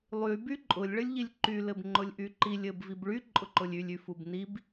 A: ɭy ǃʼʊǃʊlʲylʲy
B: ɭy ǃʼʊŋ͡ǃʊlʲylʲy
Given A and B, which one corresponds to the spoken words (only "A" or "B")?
A